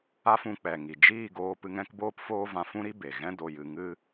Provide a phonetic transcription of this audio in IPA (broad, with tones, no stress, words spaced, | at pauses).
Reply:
a˦fũ˧k͡pɛ˨ŋi˨ d͡ʒiː˦˨ ɡoː˧pɨ˧ŋ ɛ̃˦kboː˦pfoː˦vã˧ fũ˦ɾi˦ be˨ ɣɛ̃˦ do˧jɨ˧ ŋɨ˦